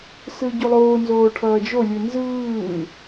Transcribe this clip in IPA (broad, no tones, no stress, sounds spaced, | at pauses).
s ɯ ɟ u lˠ oː n z oː ʈʰ ʌː d͡ʒ o lʲ ɯ n z ɯː